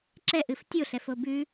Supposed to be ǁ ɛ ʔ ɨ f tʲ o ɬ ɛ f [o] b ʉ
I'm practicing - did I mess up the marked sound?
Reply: no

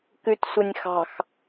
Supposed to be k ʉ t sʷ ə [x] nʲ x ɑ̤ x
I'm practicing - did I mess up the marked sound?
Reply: yes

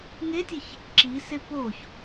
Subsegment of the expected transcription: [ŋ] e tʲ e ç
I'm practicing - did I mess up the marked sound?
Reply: no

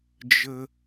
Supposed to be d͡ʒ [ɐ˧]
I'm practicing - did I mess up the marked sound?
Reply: yes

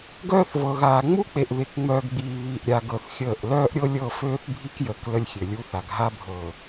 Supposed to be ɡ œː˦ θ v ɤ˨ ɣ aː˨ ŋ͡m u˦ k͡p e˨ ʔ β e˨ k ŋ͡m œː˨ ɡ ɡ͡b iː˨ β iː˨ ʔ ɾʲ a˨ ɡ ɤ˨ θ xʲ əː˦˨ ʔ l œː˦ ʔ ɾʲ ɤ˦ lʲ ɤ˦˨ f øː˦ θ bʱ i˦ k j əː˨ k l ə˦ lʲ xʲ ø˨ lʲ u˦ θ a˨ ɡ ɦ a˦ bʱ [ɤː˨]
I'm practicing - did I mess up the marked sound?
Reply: no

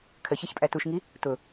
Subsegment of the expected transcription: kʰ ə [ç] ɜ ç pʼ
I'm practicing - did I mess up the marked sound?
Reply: no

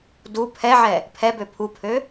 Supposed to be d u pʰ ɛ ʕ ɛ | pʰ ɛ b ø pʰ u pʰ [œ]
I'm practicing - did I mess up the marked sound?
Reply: yes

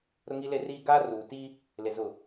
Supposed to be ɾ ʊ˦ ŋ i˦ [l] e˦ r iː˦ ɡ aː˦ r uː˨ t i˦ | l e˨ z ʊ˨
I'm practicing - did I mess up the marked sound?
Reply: no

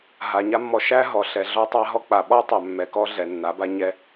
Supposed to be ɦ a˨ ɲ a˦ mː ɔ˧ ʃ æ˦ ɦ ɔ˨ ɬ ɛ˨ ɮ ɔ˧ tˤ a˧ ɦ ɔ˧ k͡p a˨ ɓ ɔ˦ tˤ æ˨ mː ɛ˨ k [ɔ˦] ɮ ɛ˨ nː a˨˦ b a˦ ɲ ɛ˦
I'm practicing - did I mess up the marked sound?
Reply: no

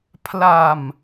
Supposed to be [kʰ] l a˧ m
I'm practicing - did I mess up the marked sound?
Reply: yes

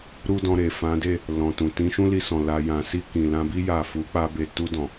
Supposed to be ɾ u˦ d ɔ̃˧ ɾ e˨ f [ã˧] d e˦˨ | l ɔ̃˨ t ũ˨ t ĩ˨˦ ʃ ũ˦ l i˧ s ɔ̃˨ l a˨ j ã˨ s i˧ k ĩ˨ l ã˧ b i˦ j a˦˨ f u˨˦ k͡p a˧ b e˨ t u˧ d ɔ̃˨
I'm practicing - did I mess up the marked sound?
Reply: yes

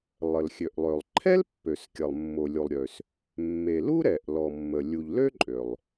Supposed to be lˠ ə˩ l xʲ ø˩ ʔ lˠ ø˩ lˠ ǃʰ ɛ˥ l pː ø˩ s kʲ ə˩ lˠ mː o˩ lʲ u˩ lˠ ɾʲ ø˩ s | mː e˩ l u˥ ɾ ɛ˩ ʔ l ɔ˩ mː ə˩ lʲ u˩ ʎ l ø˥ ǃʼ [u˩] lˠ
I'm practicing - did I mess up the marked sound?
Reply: yes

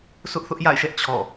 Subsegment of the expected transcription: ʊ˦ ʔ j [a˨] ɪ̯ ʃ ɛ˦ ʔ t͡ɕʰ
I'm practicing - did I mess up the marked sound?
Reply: yes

